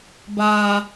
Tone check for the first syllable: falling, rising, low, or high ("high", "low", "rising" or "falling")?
low